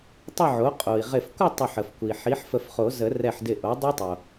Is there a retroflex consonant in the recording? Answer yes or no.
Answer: no